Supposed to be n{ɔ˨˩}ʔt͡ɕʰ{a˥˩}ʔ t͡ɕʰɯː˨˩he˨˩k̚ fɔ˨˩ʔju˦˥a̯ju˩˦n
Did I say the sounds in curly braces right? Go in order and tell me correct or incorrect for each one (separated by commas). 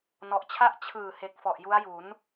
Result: correct, correct